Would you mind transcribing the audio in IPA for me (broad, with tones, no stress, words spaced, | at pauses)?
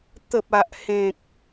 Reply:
t̪ə˨p̚a˨ʔhẽ˨k̚